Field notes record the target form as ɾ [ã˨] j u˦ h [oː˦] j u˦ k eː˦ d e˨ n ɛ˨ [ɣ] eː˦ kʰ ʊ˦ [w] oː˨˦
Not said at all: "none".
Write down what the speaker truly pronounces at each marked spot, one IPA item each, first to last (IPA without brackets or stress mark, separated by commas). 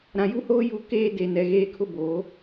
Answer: ã˨, oː˦, ɣ, b